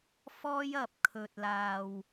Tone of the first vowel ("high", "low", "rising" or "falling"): high